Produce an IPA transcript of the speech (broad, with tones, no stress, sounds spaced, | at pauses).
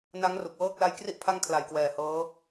n a˦˥ ŋ r u˨˩ k̚ w ɤː˥˩ k̚ l a˧ j k r i˦˥ ʔ pʰ a˦˥ ŋ kʰ l a˨˩ j k w ɛː˨˩ h ɤː˦˥